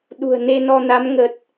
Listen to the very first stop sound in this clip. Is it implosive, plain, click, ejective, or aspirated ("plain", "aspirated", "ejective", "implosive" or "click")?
implosive